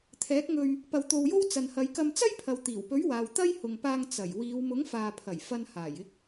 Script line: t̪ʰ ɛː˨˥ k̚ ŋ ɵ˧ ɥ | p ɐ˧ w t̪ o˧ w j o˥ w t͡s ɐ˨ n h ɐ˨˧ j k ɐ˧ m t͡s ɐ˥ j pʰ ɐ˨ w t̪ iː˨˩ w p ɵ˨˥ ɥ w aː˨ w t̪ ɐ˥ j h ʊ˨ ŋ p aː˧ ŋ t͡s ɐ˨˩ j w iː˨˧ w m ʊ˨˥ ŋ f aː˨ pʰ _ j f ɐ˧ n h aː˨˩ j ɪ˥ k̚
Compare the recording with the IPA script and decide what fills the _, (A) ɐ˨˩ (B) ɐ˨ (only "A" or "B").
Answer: A